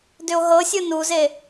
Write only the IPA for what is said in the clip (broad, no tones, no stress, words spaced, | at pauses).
dʏo̯ɦɤsʲɯ nuze